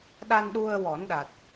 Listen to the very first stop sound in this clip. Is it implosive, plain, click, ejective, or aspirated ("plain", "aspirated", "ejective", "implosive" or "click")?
implosive